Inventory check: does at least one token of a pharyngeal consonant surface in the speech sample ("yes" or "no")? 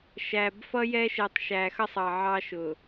yes